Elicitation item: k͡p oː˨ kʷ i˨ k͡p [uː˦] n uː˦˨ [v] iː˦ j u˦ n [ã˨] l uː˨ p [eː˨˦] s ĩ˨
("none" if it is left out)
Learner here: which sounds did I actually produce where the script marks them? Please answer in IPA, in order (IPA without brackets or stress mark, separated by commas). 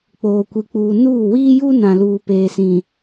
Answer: uː˨, w, ã˨, eː˨